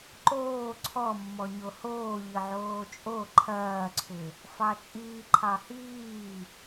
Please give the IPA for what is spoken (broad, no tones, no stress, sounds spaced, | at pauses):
ǃ oː ǀʰ ɔ mː ɔ ɲ o h oː ʎ ə ʕ oː t͡ʃʼ o ǃʰ ɐː ǀʰ ʏ | f ɑ t͡ʃʼ iː ǃʰ ɑ h iː